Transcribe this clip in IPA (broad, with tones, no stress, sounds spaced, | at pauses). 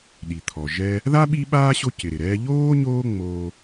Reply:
ɗ i˩ t̪ʰ ɔ˩ ʒ ɛ˦ | ð a˥ ɓ i˦ ɓ aː˥ ɕ o˦ c ɪ˩ ɾ ɪ˩ ɾ ɛː˦ ʎ oː˥ ɲ oː˦ ŋ͡m oː˦